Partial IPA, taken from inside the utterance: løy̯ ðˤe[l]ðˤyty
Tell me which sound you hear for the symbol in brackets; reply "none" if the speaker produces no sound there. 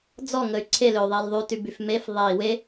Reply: l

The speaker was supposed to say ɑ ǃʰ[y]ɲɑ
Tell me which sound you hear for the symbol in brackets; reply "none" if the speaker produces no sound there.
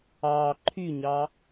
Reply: y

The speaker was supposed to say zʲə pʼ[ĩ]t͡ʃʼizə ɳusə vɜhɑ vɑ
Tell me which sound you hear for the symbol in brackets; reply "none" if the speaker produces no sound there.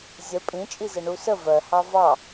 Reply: ĩ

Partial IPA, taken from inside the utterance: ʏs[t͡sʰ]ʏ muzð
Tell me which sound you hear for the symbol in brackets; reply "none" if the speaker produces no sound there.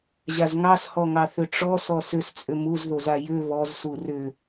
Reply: t͡sʼ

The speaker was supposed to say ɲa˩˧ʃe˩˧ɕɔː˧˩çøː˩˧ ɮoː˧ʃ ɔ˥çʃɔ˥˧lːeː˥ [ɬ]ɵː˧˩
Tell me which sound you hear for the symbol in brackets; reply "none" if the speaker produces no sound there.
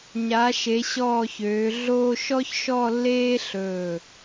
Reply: ɬ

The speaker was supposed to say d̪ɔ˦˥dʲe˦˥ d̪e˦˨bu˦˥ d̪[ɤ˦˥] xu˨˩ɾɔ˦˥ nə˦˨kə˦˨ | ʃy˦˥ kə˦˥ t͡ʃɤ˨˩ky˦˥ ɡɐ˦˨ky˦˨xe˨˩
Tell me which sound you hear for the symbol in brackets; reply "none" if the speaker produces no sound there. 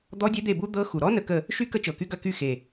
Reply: ɤ˦˥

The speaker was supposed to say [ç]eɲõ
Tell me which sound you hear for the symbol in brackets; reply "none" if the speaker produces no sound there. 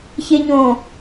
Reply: ç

